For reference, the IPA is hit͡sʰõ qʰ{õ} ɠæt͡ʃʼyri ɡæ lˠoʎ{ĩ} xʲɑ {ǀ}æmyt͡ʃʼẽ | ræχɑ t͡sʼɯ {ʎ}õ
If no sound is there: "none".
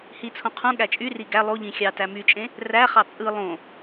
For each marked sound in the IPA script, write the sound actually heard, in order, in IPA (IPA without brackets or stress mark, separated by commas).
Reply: ũ, ĩ, t, lˠ